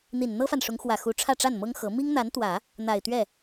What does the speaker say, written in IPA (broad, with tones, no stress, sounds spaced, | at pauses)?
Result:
n̪ i˨˩ n n̪ ɤ˥ f a˨ n ʂ ʊ˧˥ ŋ x w ä˨˩ x u˧˥ ʈ͡ʂʰ ä˥˧ ʈ͡ʂ a˥˩ n m ɤ˥ ŋ x ɤ˧˥ m i˥ ŋ n̪ a˧˥ n t̪ w ä˨˩˦ | n̪ a˨˩ ɪ̯ t̪ ɥ ɛ˥˩